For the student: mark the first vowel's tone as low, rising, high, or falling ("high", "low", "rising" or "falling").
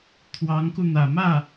rising